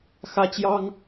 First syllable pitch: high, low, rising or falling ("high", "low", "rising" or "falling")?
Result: high